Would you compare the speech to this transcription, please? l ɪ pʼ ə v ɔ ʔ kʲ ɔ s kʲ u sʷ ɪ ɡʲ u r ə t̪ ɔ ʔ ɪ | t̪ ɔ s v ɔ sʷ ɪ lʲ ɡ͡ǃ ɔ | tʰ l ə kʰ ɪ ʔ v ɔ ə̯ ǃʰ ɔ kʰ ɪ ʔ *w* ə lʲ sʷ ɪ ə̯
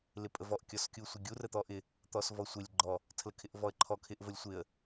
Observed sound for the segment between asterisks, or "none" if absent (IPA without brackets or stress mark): v